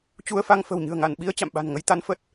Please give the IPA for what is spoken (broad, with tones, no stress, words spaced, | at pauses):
t͡ɕu˧ə̯fa˧ŋ fə̤˨˩wɲɨ̤˨˩ə̯ŋa˧˩n ɓi˧ə̯ t͡ɕa̰˧˨mɓa̤˨˩nŋə˧j t̪a˨˦nfə˦˥t̚